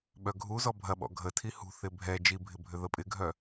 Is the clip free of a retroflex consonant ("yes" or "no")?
yes